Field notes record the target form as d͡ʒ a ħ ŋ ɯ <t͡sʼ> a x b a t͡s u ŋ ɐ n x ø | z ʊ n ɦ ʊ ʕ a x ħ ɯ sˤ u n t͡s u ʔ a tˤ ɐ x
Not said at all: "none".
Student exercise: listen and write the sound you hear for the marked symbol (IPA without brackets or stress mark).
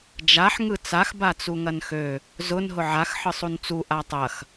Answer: t͡s